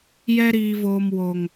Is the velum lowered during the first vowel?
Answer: no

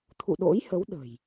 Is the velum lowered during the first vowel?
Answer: no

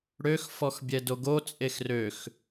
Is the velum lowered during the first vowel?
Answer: no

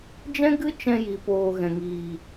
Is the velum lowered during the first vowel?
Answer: yes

